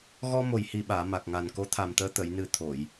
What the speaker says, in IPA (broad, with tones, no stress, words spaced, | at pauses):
ɣɔ˧ mo˨˩jhi˨˩ɓaː˨˩˨ ma˨˩k̚ŋa˨˩n ko˧˥t̪ʰa˨˩mt̪əː˧ t̪ə˨˩˨jnɨ˨˩ t̪ʰo˨˩˨j